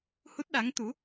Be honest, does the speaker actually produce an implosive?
yes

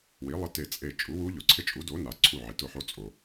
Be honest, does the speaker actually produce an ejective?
yes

